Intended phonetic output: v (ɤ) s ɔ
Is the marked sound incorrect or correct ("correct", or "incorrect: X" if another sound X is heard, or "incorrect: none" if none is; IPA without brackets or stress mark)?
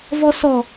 incorrect: ɔ